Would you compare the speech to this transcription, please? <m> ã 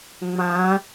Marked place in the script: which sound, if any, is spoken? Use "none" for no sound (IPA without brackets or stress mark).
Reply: ŋ͡m